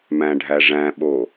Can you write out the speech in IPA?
m æ̃ ɖʱ æ ʐ æ̃ ɓ oː

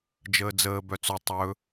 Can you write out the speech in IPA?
d͡ʒ əː d͡z əː b œ t͡s o tˤ ɵ

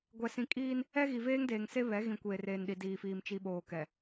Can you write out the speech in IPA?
ɡʷ ɛ˨ s ĩ˨ kʼ iː˦ n | ɛ˦ ɣ i˨ v eː˦ ŋ d eː˨ ŋ s e˦ β ɛ˨˦ ɣ ĩ˨ kʷ eː˨ r eː˨ n ɗ i˨ d iː˨ f iː˨ m t͡ʃ i˨ ɓ oː˨ k ɛ˨

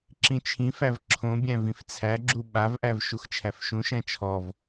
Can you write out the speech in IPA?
ǁ ĩ t͡ʃʰ ĩ f æ v ǁʰ õ bʲ æ̃ v ĩ f t͡sʰ æ ɡ͡ǁ u ɓ a v ʔ æ v ʃ u x t͡ʃʰ æ f ʃ ũ ʃ æ̃ t͡ʃʰ ɔ v

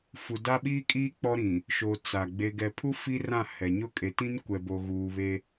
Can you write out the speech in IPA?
f u˨ d a˦ ɓ iː˦ kʼ iː˦ k͡p ɔ˦ ɾ ĩ˨ | ʃ o˨ t͡s a˨ ɡ͡b e˨ ɡ ɛ˨ pʰ u˦ f i˦ r ã˦˨ h ɛ˨ ɲ ʊ˦˨ kʼ e˨˦ t ĩ˦ n kʷ ɛ˨ b o˨ ɣ uː˨ β e˦

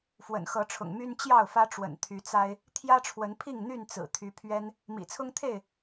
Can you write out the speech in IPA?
f w ə̰˨˩ n x ɤ˨˦ ʈ͡ʂʰ ʊ̰˨˩ ŋ m y˦ n t͡ɕ j ɑ˥˨ ʊ̯ f ä˦ ʈ͡ʂ w ə̰˨˩ n t̪ʰ y˨˦ t͡s a˦ ɪ̯ | t̪ʰ j ä˦ ʈ͡ʂʰ w ə˨˦ n pʰ i˥˨ ŋ n̪ y˥˨ n t͡s ɹ̩˨˩ t̪ʰ y˨˦ pʰ ɥ ɛ˦ n | m ḭ˨˩ t͡sʰ ʊ˦ ŋ t̪ʰ e˥˨ ɪ̯

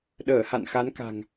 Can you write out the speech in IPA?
ɗ əː˧˩ h a̰˧˨ n x a˨˦ n k a̤˨˩ ŋ

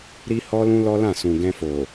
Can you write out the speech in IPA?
ɾ i˦ h ɔ˦ l ũ˦ l ɔ˦ l ã˦˨ s ũ˨ ɡ ɛ̃˧ f o˨

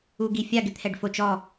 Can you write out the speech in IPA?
u ɡ i fʲ a ɡ ɪ t̪ʰ ɛ ɖ f o t͡ʃ ɔ

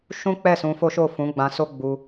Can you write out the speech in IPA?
ʃ ũ˦ k͡p ɛ˦˨ s ũ˧ f o˦ ʃ o˦˨ f ũ˨˦ ɡ͡b ã˧ s o˦ ɡ͡b u˧

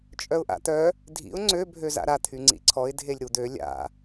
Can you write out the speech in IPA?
t͡ʃʼ œ ʊ̯ ʔ a̰ t̪ œ | dʱ ḭ ʊ̯ ŋ͡ǀ ø bʱ ø z a̰ ɾ a t̪ʰ y ŋ͡ǀ ḭ ǀʰ ɔ ɪ̯ dʱ e lʲ ɾ u d̪ ø lʲ a̰

